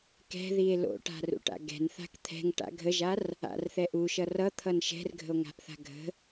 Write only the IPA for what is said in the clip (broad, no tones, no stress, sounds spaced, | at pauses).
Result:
k ɛ̤ ð i e̯ l o̰ ʈ a̤ r ṵ ʈ a̰ ɡ ɛ̤ n θ a̤ k t̪ʰ ɛ̤ ŋ ʈ a̰ ɡʱ ə ʒ a r | a̰ r θ ɛ ʔ u ʃ ʌ r ʌ t̪ʰ ʌ n ʃ ɛ̤ r ɡʱ ə̤ o̯ ŋ a̤ ʔ θ a̤ ɡʱ ə̤